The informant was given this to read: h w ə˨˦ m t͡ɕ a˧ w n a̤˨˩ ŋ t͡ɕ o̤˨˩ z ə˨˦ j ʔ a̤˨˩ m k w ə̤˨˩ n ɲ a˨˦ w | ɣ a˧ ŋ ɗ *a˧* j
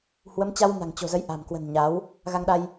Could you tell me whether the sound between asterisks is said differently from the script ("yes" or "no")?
no